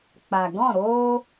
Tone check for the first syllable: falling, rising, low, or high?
low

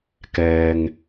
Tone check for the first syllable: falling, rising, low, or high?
low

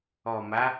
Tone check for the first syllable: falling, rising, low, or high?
low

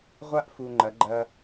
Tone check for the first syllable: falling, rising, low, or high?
high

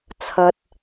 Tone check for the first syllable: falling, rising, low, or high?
high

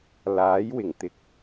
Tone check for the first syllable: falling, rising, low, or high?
rising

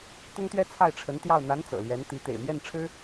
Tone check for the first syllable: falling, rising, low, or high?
high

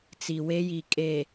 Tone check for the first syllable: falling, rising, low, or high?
low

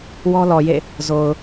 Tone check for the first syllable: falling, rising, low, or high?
high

